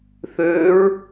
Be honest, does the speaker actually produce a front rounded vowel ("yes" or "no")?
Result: yes